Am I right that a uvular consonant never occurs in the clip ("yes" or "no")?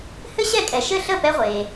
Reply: no